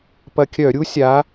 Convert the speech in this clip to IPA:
p ɐ˧ kʲ œ˧˩˧ ɾʲ u˦˥ sʲ a˨˥

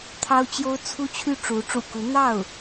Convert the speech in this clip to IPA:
t̪ʰ ɑ˥ ʊ̯ t͡ɕ j o˥ ʊ̯ t͡sʰ u˥ t͡ɕʰ y˥˩ ʈ͡ʂ u˧˥ ʈ͡ʂ ṵ˨˩ k u˧˥ n̪ ɑ˥˩ ʊ̯

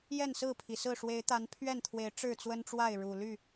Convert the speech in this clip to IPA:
j ɛ˥˨ n s ɹ̩˥˨ pʰ i˩ s ɹ̩˥˨ ʂ w e˨˦ ɪ̯ t̪ a˨˦ n pʰ ɥ ɛ˥˨ n t̪ʰ w e˨˦ ɪ̯ ʈ͡ʂ ɻ̩˥˨ t͡s w ə˦ n ʈ͡ʂ w a˥˨ ɪ̯ ɻ u˨˩ l y˥˨

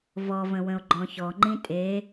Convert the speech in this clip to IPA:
v ɔ v ə̃ w ə̃ o̯ ɡ͡ǃ ɔ̃ ç ɔ ŋ͡ǃ ĩ tʼ e

